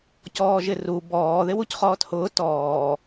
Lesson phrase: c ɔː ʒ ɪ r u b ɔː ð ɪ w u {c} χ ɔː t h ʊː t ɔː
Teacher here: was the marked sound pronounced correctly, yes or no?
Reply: yes